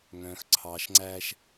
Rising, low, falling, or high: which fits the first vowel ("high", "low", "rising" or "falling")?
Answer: low